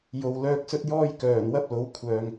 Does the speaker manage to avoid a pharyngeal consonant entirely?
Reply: yes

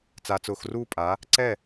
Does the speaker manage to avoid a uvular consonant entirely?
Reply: yes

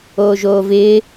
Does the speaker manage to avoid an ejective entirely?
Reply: yes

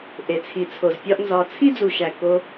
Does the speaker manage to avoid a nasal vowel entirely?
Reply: yes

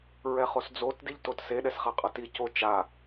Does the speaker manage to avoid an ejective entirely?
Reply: no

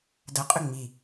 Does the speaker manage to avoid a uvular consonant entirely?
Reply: no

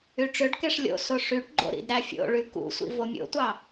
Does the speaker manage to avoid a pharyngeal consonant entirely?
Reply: yes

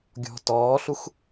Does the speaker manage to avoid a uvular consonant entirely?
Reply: yes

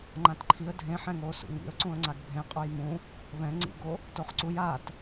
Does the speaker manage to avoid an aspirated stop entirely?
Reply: no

